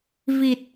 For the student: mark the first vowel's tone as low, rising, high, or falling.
low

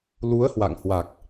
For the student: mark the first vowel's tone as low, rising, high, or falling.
rising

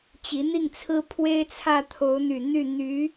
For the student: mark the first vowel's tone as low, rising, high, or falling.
rising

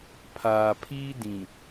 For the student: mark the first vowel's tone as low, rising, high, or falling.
low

